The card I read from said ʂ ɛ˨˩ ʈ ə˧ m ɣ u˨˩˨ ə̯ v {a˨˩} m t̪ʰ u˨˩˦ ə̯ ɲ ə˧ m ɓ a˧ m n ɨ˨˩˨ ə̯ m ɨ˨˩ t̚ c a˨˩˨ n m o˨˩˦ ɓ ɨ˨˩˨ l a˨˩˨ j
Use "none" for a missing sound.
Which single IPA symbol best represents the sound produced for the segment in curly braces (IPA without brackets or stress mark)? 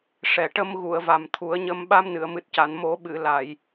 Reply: a˨˩